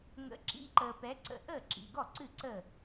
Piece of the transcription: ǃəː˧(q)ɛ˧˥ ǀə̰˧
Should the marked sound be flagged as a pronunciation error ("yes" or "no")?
yes